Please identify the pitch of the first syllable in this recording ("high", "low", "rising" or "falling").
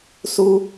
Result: high